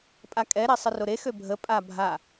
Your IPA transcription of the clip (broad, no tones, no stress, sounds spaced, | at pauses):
pʼ a kʼ ɛ ɾ e sˤ ə r o ɾ e x ø bʱ ə pʼ a bʱ a